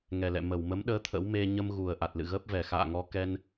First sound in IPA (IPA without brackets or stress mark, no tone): ŋ